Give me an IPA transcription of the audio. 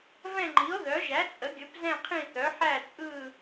v ɛ̃˦˨ ŋ͡ǃ i˩˥ o̯ ð œ˩˥ ʒ æ˩˥ t͡sʼ ə˩˥ ɡʲ ɵ˩˥ p z ɛ̃˦˨ qʰ ĩ˦˨ θ œ˩˥ ħ æ˦˨ t͡sʼ ɯ˦˨

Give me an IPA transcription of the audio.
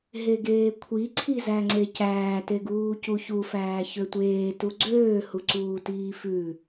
ɦ e ɡ eː kʷʰ i ǀʰ i z æ ŋ͡ǀ e c æː t e ɡ uː c u ç u f æː ç ø tʷ eː t u ɡ͡ǀ øː h u ǀ uː t iː f ʉ

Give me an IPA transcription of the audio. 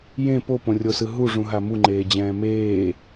j ẽ p o p õ rʲ o s ɯ ɦ u ʐ ũ ɦ a m u ŋ͡ǃ eː d͡ʑ ɛ̃ː m eː

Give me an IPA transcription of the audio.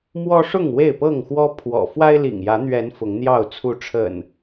m w ɔ˦ ʂ ʊ˥˨ ŋ w e˥˨ ɪ̯ p ɤ˥˨ ŋ x w ɔ˦ pʰ w ɔ̰˨˩ f w a˦ ɪ̯ l ḭ˨˩ ŋ j ä˨˦ n̪ ɥ ɛ˨˦ n f ʊ˨˦ ŋ n̪ j ɑ˥˨ ʊ̯ t͡sʰ u˨˦ ʈ͡ʂʰ ə̰˨˩ n

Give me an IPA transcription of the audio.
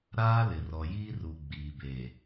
ɾ aː˦ l ɪ˨ r ɔ˨ j iː˦ r u˨ ɡ͡b iː˨ b e˨

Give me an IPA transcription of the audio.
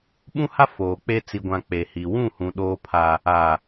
ɓ ũ˦ h a˦ f oː˨ k͡p e˦ t͡s i˨ ɡʷ ã˨ k͡p e˨ h i˨ w ũ˦˨ h ũ˨ ɗ oː˦ pʰ a˦ | aː˨

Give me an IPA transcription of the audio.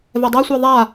v ɛ dˤ a sʷ ɛ ðˤ a

